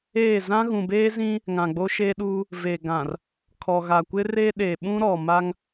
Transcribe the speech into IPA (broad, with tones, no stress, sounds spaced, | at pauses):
eː˦˨ z ã˦ ɣ ũ˨ b eː˦ z ĩ˦ | ŋ ã˨ ɡ͡b o˦ ʃ e˦ ɗ uː˦ | v e˨ ɡ ã˨ r | kʰ ɔ˨ ɣ a˨ kʷ ɪ˦ r e˦ ɗ e˨ ɓ ũ˦ ɾ ɔ˨ m a˦ ŋ